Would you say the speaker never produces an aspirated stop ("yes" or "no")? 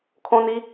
no